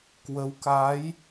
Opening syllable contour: rising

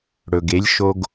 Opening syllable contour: low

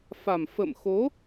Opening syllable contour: low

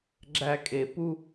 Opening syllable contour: high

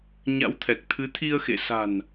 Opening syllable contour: rising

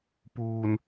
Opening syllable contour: low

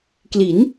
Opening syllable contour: rising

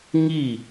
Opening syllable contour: falling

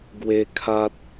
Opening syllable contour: high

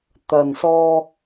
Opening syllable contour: low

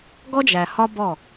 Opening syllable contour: high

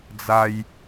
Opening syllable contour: high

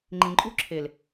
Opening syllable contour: low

